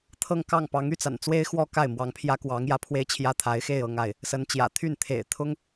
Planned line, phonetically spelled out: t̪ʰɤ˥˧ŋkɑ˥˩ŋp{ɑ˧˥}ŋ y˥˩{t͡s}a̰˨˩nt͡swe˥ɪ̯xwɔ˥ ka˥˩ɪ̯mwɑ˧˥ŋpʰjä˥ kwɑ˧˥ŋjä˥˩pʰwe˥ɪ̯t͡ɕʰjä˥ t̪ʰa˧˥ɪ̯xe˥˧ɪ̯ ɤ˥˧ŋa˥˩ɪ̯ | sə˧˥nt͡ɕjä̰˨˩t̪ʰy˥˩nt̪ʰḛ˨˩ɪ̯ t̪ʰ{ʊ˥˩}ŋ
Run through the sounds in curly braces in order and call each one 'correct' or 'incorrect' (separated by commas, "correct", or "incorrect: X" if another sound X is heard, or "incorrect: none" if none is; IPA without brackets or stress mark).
correct, correct, incorrect: ʊ˥